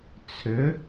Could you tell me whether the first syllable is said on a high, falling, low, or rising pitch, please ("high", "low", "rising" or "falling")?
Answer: rising